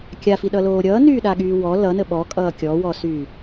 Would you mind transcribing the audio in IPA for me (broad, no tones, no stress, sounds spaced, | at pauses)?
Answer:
kʲ a f i ɗ ʌ l oː ɾʲ ʌː n yː ɗ a ɠ yː w ɔ l ʌ n ə ɓ ɔ kʼ ʌː kʲ ɔ w ɔ s yː